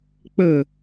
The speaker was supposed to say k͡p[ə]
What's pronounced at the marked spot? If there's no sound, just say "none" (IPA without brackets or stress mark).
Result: ə